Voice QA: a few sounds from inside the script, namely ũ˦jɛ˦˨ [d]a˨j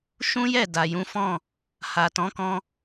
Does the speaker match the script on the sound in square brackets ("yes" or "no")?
yes